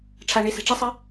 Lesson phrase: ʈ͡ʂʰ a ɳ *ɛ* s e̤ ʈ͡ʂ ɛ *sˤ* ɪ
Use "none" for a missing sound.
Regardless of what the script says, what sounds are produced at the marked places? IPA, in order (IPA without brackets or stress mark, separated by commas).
e, sˤ